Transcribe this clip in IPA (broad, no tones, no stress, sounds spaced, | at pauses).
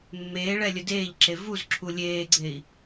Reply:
mː eː ɭ ɛ lʲ ə d eː ʎ ǁ e v u z ǁʰ u lʲ eː ɡ͡ǀ e i̯